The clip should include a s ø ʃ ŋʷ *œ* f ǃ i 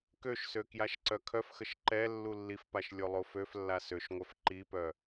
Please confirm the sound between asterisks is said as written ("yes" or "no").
yes